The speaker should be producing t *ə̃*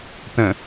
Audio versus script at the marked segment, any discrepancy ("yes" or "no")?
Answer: no